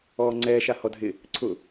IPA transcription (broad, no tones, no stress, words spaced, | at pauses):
ɔːŋ͡ǀɛː ʃahɔdʱɪ | ǀʰʊ